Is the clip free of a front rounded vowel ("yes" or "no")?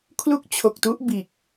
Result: yes